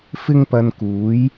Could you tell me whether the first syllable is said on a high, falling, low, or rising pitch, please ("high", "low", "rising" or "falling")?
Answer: high